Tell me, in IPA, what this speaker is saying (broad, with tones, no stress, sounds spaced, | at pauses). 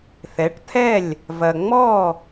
θ ɛ˩˥ ʈ t̪ʰ ɛ˥˩ lʲ | v ɐ˩ ŋ͡m ɔ˥˩